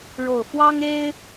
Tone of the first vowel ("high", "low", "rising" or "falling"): low